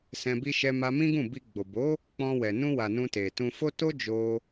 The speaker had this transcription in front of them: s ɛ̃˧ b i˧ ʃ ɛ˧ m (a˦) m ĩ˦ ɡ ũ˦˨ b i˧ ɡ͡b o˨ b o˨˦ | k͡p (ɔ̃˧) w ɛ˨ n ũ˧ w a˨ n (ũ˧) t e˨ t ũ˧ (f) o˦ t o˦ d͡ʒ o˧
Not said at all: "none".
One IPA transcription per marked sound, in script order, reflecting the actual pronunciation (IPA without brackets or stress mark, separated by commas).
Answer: a˧, ɔ̃˧, ũ˧, f